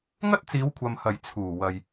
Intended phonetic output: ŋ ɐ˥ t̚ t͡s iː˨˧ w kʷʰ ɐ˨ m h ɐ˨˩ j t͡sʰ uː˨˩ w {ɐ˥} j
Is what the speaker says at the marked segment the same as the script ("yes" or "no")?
no